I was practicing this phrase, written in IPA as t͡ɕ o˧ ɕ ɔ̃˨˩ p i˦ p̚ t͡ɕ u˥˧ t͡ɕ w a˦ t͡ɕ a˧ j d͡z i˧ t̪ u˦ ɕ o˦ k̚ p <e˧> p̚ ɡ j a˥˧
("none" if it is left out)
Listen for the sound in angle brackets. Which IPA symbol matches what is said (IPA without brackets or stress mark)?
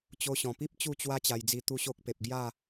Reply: e˨